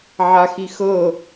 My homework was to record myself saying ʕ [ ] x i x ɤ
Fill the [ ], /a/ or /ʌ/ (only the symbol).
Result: a